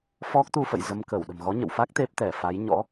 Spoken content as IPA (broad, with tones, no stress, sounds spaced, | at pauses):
f ɔ˦˥ k̚ t̪ u˧ f ə̰˧˨ j z ə˧ m k ə˧˩ w ɗ ə̤˨˩ m ɣ ɔ˨˦ ɲ ə̰˧˨ w f a˦˥ k̚ t̪ e˦˥ p̚ t̪ ɛ˧˩ f a˨˦ j ɲ ɔ̰˧˥